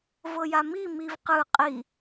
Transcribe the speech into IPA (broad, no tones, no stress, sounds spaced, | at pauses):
v ɤ j a m i m i v q ɯ qʼ i